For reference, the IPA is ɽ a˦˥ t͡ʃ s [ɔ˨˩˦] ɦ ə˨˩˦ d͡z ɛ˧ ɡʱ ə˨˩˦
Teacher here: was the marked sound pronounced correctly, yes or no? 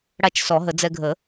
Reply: yes